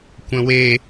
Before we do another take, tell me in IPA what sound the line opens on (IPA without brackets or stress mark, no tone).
kʷ